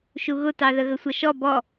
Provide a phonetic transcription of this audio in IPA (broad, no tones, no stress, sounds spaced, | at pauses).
ʃ u ɣ ʊ t ɑ ð ə ɣ ə sʷ ʌ ʃ ɔ b ɔ